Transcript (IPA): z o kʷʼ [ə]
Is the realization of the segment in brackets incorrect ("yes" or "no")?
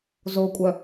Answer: yes